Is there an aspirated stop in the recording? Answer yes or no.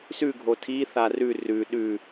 yes